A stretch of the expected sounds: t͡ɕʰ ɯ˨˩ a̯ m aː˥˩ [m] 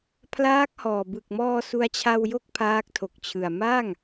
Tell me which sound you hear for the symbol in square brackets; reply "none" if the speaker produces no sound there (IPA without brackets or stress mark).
ŋ